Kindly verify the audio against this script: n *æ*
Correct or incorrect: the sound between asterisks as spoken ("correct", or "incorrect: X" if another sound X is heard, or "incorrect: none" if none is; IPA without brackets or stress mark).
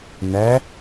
correct